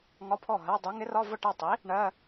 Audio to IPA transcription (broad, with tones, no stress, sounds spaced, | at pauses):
ŋ ɒ˧˥˧ pʰ ɔ˥˩ ɦ ɜ˧˥˧ dˤ u˨˥ ŋ ɪ˨˥ r ɒ˧˥˧ v ʊ˥˩ ʈ ɜ˥˩ tˤ i˨˥ | ɳ ɜ˧˥˧